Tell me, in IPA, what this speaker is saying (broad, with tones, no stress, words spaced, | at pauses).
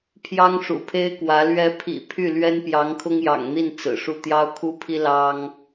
pʰjɑ˥ŋʂṵ˨˩pʰe˥ɪ̯kwä˧˥ lɥɛ˧˥pʰḭ˨˩ pʰy˥˩ lɥɛ˥npjɑ˧˥ŋkʰʊ˥ŋ jɑ̰˨˩ŋn̪i˥˩n t͡sɹ̩˨˩ʂu˥˩ t̪jɑ˥ʊ̯kʰu˥pʰi˥ lɑ˥ŋ